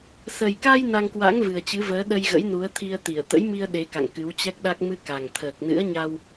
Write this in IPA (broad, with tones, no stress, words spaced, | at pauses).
sə˨˩jka˧j na˧ŋkwa̰˧˥ŋ vɨ˨˩ə̯t͡ɕɨ˨˦vəː˨˦ ɗə˧jɣə̰˧˥jnu˨˦ə̯t̪ʰi˧ə̯ t̪i˧˩ə̯ t̪ə̰˧˥j mi˧ə̯ ɗe˨˦ka̰˧˨ŋ kɨ˨˦wt͡ɕɛ˦˥k̚ɗa˦˥k̚ mɨ˧ka˨˩ŋ t̪ʰəː˨˩k̚nɨ̰˧˥ə̯ɲa˧w